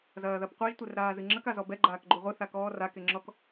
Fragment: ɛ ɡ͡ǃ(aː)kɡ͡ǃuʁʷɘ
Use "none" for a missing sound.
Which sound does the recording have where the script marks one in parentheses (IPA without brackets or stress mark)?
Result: aː